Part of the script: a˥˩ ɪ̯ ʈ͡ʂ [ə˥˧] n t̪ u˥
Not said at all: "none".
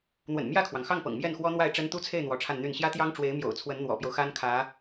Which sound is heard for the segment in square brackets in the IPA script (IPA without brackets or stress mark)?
ə˥